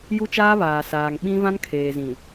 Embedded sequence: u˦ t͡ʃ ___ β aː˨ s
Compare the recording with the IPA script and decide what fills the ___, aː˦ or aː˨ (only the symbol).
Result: aː˦